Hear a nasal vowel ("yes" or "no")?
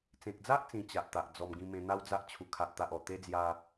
yes